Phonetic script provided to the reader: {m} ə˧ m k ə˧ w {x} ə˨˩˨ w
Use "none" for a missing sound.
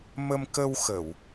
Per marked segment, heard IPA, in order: m, x

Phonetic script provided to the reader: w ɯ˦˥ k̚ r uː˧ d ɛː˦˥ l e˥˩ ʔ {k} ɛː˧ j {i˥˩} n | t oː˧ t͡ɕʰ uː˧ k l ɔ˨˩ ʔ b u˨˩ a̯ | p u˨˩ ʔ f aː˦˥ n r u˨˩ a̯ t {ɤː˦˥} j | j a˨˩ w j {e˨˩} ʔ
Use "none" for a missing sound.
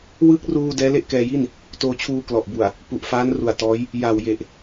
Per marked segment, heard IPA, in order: k, i˥˩, ɔː˦˥, e˨˩

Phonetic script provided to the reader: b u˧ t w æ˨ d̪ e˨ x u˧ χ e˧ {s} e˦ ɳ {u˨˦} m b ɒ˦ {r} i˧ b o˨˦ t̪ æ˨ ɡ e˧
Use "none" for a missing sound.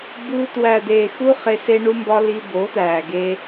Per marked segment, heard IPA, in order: s, u˦, l

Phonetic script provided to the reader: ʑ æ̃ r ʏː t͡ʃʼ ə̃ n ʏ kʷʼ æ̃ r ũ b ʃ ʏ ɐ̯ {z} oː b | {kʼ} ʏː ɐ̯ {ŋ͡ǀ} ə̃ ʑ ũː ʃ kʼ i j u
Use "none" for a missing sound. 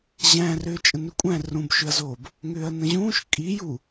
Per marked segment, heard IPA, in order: z, ŋ, n

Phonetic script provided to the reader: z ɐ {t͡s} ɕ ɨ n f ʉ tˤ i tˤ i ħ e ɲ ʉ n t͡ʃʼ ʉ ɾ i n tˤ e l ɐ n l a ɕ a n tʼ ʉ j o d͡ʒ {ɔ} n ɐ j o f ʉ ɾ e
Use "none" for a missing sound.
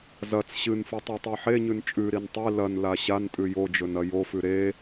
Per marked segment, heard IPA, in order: t͡s, ɵ

